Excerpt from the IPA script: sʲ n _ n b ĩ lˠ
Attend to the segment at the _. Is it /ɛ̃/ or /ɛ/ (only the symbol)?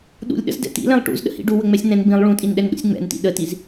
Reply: ɛ̃